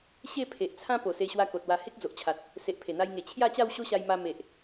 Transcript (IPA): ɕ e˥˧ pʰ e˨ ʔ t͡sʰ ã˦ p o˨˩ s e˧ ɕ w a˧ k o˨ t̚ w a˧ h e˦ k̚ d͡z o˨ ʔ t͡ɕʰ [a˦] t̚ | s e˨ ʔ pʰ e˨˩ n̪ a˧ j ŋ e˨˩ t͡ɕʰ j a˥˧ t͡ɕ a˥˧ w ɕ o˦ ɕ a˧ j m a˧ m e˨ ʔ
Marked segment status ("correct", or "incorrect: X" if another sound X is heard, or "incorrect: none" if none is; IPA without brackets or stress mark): incorrect: a˨